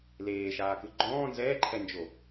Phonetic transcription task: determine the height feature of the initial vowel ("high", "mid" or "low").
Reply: mid